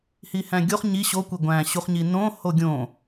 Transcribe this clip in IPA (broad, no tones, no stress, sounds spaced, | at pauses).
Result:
h i h æ̃ ɡʲ o χ ɲ i ɕ o kʷ e ɡʷ æ̃ ɕ u χ ɲ i n õ h o ɡʲ õ